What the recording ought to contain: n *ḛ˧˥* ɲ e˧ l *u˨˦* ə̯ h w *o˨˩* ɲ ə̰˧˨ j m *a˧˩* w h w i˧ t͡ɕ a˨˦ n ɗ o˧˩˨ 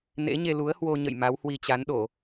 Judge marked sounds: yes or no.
yes, yes, no, no

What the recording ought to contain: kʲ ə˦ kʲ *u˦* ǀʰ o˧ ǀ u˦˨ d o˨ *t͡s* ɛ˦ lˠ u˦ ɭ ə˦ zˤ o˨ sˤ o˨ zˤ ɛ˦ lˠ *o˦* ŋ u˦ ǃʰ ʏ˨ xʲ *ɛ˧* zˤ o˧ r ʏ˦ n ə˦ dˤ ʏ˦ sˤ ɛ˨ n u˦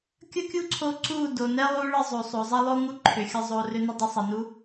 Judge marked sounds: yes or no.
yes, no, yes, no

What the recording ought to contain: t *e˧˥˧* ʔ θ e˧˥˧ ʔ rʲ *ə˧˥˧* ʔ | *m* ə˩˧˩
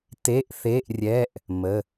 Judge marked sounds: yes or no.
yes, no, yes

